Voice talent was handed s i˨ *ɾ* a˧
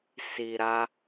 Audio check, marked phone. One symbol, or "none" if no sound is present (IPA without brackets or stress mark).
ɾ